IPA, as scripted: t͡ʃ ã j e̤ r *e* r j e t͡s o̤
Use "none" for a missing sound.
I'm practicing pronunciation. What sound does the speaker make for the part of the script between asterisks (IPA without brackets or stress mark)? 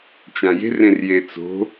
ẽ